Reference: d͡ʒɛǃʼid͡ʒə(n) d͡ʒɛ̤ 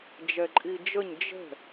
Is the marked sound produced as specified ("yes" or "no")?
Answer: no